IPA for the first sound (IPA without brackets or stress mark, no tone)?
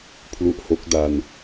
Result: pʰ